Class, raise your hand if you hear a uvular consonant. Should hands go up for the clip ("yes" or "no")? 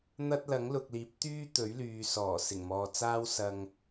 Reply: no